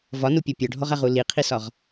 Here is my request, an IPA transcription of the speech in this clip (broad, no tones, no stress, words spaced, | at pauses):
vɒnupʲɒ pʲɔɖʱɔʁaʁu liqʰisɒʁ